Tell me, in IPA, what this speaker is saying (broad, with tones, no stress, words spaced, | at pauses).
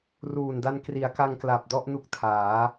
ruː˨˩nda˧n kri˩˦a̯ka˧ŋkla˨˩p̚ dɔ˥˩ʔnu˦˥k̚tʰaː˩˦